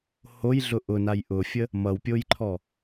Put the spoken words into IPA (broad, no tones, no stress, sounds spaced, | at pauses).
h o j ɮ ʊ ʔ ʊ n a j ʔ ʊ fʲ ə | m ʌ w pʲ o j ǃʰ ɔ